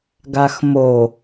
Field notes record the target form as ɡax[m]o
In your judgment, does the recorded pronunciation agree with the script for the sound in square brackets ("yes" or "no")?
yes